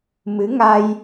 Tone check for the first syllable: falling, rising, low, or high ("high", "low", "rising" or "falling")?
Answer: rising